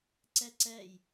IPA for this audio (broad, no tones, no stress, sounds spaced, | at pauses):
ǀ ɛ ǀ ɛ j